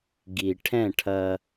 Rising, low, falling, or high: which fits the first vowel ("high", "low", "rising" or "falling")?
low